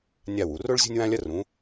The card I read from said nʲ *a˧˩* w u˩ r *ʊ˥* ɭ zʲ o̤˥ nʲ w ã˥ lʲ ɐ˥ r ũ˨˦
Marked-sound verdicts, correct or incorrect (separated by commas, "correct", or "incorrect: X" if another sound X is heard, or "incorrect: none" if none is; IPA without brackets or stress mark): correct, correct